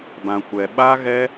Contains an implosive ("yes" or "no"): yes